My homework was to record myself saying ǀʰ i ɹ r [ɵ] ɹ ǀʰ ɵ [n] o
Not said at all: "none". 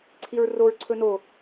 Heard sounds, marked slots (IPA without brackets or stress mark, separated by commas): o, n